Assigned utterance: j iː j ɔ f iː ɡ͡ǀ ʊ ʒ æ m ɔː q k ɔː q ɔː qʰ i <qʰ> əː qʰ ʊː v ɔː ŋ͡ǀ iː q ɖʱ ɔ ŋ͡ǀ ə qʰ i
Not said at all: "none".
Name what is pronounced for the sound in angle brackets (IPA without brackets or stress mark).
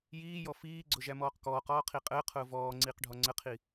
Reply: qʼ